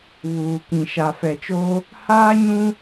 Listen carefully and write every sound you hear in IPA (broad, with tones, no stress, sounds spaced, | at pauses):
β uː˨ k ĩ˨ ʃ a˨ f ɛ˨ t͡ʃ oː˦ | h aː˦ ɲ ũ˦